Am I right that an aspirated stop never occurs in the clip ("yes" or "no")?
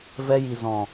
yes